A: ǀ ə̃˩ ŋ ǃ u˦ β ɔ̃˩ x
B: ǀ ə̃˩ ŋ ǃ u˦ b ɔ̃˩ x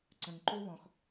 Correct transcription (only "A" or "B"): A